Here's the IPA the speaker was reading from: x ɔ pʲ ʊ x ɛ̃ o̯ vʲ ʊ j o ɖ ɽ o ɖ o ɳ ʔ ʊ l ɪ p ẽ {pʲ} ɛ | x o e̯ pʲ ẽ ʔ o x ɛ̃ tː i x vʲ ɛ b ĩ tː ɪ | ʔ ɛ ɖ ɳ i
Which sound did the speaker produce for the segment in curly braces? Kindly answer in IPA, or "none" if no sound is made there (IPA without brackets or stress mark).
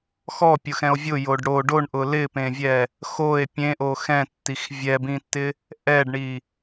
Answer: vʲ